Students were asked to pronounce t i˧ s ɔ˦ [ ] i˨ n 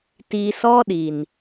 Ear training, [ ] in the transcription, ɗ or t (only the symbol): ɗ